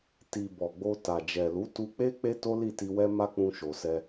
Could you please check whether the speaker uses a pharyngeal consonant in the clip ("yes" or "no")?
no